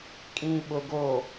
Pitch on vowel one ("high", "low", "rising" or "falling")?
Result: low